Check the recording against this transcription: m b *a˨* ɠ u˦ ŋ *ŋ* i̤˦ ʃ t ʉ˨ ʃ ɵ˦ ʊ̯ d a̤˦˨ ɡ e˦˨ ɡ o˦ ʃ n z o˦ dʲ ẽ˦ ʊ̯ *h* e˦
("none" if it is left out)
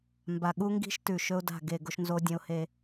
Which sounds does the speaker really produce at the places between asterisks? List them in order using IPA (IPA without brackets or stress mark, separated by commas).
a˨, ɡ, h